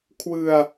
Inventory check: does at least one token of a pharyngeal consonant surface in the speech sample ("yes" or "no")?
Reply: no